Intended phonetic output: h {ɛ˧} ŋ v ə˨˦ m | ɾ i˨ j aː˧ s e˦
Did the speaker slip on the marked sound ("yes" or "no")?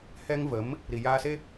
no